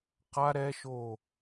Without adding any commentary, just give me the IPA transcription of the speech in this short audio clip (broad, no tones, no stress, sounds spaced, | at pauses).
q a ɾ ɛ ʃ o